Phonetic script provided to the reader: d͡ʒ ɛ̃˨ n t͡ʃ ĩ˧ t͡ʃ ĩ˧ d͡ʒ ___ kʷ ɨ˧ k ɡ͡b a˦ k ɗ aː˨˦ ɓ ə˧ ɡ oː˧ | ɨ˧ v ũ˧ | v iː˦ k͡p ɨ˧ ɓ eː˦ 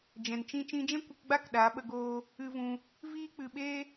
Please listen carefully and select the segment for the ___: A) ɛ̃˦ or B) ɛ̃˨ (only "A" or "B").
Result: A